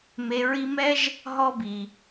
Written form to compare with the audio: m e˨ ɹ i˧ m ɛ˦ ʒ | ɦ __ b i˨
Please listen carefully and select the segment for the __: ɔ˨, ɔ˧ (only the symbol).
ɔ˧